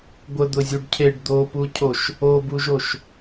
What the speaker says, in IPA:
ɡʷ ə d̪ ʊ zʲ u ɖ cʰ e ɖ d̪ o p u cʰ o ʃ | o b u ʒ o ʃ

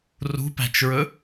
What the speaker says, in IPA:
r ṳ p æ̤ t͡ʃ ɹ ɵ

